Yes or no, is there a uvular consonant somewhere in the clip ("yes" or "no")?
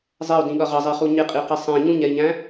yes